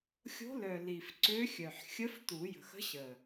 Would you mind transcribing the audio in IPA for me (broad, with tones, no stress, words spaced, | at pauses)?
xʲo̤˧˥lœ˨˩ li˨˩fǀø˧˥xʲœ˨˩ħ xʲə˧˥ftu˨˩˦jə̤˨˩x ə̤˧˥ɕə˨˩